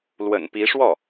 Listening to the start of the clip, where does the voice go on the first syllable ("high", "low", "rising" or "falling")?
low